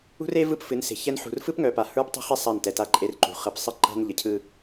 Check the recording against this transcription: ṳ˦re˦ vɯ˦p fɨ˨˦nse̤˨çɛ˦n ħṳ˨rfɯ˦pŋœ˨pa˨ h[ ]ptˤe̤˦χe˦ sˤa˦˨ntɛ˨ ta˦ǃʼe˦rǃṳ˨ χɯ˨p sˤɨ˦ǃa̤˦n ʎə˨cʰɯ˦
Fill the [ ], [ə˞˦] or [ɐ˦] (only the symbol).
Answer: ə˞˦